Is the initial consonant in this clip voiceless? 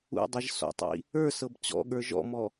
no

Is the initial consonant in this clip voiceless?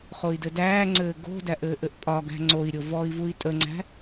yes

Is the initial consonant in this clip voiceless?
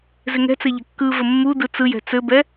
no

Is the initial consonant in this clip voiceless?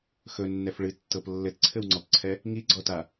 yes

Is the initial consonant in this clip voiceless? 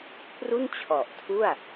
yes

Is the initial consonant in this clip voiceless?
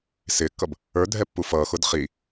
yes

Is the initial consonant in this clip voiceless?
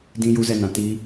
no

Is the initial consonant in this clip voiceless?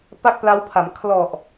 yes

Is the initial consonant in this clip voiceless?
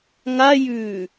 no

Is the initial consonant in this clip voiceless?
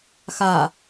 yes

